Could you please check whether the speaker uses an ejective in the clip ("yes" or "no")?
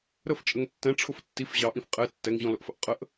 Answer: yes